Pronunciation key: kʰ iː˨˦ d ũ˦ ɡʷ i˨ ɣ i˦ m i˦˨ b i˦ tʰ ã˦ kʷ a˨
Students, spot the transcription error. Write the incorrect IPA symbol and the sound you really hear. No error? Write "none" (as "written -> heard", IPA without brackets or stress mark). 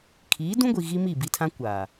none